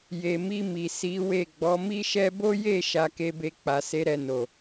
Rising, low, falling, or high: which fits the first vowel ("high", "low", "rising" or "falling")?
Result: low